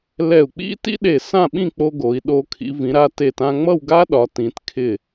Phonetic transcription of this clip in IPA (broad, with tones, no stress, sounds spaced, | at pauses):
l ɛ˧˩ u̯ k͡p ḭ˥ t ḭ˥ ɗ e˧˩ s ã˥˧ ɓ ĩ˥˧ k͡p o˧ ɡ o˩˧ i̯ ɗ o˧ kʰ ḭ˩˧ v ĩ˩˧ ɾ a˧ t e˧˩ t ã˧ ŋ͡m ʌ˥˧ w ɡ a˥ ɗ ɒ˩˧ t ĩ˩˧ t kʰ ɪ˧˩